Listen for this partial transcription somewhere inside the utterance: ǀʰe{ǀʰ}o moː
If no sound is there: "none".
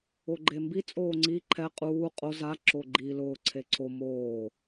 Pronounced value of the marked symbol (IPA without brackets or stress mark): ǀʰ